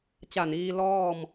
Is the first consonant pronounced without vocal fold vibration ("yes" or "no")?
yes